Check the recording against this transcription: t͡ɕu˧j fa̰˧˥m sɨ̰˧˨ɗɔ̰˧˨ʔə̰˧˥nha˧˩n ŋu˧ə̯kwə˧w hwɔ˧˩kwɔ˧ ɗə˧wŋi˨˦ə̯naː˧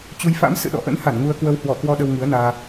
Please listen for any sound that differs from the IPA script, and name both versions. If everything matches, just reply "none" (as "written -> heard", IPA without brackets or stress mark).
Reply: none